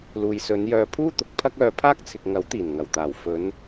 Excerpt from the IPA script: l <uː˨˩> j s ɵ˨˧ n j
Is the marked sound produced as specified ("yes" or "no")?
no